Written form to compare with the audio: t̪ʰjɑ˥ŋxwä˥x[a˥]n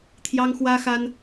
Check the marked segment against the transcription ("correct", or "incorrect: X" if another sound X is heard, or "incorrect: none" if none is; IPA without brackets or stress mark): correct